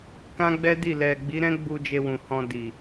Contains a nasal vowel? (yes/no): yes